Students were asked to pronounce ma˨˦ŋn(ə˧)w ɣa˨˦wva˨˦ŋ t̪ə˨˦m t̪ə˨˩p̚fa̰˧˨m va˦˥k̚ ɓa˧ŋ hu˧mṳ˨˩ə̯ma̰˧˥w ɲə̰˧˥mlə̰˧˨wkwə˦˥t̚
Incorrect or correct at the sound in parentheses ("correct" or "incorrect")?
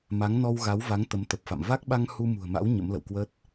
incorrect